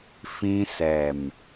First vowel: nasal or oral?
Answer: nasal